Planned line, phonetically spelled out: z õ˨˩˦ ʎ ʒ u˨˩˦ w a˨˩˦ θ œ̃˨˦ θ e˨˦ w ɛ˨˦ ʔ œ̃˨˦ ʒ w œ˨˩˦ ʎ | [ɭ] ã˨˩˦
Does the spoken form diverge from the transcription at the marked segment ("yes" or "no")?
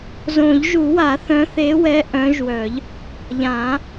yes